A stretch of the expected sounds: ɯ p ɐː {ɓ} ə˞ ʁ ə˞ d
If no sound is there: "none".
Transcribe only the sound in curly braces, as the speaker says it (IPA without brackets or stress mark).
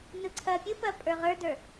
pʼ